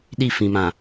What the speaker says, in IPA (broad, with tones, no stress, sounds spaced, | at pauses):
ɗ i˦˨ f ĩ˨ m ã˨